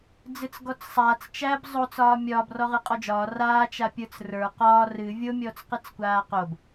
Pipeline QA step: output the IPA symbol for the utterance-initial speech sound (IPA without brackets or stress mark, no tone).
d͡z